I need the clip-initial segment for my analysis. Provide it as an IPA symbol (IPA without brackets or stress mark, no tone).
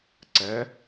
ǀ